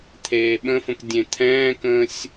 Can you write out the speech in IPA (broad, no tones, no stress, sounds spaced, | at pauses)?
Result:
t̪ʰ eː ɓ ə̃ f ə̃ k dʲ ẽ t̪ʰ ɛ̃ː k ə̃ː sʲ